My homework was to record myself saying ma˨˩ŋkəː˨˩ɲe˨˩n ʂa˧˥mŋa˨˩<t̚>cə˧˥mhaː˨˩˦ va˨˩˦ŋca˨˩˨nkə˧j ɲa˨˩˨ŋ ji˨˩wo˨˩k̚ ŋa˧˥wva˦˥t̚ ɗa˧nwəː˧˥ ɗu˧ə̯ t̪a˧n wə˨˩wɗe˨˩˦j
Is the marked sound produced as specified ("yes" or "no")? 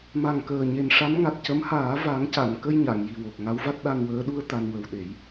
yes